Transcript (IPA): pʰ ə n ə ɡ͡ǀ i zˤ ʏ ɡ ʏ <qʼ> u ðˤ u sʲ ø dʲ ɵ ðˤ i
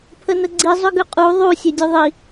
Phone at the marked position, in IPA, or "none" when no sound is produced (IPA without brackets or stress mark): qʼ